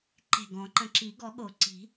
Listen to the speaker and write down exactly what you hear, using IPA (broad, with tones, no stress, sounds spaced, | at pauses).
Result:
ǃ e̤˧˩ ɡ ɔ̃˨˩˦ ǃ ə̃˧˩ ǁ i˨˩˦ ɡ ɔ˨˩˦ ɠ o˨˩˦ ǀ i̤˨˩˦